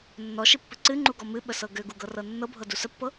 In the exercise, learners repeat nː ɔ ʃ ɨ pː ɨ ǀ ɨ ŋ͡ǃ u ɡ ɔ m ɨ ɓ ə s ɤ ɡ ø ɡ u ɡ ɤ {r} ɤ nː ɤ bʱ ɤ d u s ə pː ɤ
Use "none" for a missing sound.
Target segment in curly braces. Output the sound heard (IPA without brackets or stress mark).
r